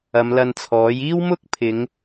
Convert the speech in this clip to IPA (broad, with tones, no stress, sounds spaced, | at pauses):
ɐ˨˧ m l ɐ˧ n t͡sʰ ɔː˨˥ j iː˥ w m ʊ˥ k̚ pʰ ɪ˨˧ ŋ